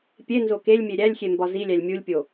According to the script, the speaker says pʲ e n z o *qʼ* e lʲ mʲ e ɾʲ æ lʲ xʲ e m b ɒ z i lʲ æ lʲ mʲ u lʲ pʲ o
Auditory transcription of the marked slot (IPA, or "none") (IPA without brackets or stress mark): k